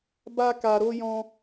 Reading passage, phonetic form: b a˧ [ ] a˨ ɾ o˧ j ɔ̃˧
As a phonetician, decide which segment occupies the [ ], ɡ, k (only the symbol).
k